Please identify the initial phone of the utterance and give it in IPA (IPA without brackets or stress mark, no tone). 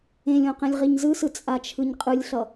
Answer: ẽ